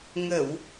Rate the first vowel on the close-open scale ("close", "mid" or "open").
mid